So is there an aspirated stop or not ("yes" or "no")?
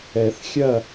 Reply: no